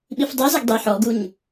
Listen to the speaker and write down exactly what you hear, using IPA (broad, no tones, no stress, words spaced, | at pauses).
ɓifdˤizɪɡ dˤi ħɔɡuɲ